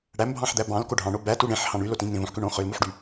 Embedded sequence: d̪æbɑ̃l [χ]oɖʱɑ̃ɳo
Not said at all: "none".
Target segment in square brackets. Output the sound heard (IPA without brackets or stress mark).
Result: k